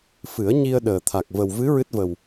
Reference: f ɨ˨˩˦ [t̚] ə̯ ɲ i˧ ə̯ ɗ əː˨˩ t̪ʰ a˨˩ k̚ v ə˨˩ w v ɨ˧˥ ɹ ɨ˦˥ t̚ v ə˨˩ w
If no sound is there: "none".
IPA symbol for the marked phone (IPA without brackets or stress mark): none